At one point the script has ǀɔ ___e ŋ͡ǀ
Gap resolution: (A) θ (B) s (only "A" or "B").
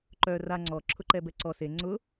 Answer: B